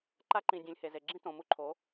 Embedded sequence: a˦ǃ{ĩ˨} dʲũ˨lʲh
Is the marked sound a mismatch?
no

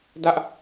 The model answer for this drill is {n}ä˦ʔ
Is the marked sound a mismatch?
yes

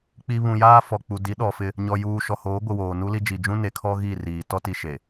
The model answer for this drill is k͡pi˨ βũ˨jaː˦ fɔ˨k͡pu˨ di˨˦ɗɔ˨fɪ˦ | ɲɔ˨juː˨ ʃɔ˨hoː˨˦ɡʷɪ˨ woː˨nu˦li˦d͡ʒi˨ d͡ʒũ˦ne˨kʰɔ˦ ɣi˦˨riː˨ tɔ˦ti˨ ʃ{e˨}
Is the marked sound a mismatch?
no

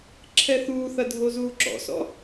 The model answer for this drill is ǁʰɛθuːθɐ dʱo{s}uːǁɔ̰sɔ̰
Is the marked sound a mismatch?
yes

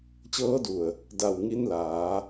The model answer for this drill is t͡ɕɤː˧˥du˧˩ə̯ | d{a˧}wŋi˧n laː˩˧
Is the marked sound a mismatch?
yes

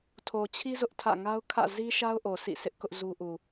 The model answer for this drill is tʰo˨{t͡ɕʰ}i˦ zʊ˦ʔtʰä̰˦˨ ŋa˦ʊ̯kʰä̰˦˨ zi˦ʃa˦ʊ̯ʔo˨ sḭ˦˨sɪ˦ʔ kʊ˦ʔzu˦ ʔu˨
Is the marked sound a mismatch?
no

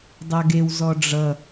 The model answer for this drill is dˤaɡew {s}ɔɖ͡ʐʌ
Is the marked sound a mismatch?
yes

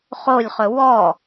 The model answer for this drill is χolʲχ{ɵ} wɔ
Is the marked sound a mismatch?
no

